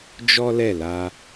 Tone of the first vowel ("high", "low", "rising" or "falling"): high